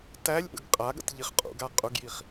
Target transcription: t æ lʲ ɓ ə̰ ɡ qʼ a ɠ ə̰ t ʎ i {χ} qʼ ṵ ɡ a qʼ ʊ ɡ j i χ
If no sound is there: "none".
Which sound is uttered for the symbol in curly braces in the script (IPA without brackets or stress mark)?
χ